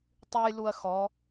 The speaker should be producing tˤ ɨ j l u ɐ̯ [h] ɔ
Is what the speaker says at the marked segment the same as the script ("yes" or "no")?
no